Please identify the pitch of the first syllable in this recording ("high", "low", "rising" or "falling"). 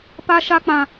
high